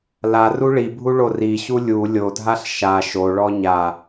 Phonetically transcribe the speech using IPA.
la ruɭibʱu ɭoriɕu lʲu lʲodʱaɬ ʃa ʃoɭɔ ɲa

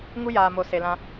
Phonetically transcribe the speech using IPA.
ŋu˦jaː˨mo˨ se˨lã˧

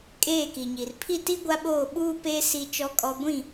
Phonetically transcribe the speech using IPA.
kʼeː˦˨ki˨ɲi˨r pʰi˦˨ti˦ ɡʷa˦ɓoː˦˨ɓuː˦peː˦ si˦t͡ʃɔ˦kʼɔ˦ ɡʷĩ˦˨

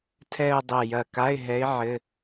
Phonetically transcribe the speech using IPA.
tʰɛ˥˧ʊ̯dˤɛ˧˩ jɐ˧˩ka˧˥˧ɪ̯ɦɛ˧˥ɪ̯ ʕɘ˧˥˧

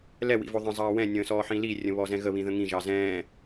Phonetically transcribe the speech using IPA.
lɛ wḭvoðˤə̃ zˤɑːwɛ̃ nʲə̃ːsɔːħĩli rʲə̃βɔzɛ̃ɣə βĩðə̃ŋĩ ʒɑzɛ̃ː

